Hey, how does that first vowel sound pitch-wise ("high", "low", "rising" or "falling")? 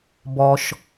low